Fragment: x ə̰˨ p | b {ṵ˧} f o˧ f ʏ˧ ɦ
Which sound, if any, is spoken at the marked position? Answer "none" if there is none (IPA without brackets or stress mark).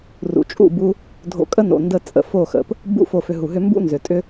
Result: ṵ˧